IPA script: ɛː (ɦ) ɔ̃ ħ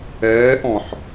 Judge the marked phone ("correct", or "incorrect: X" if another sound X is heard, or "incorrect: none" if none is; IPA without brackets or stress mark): incorrect: ʔ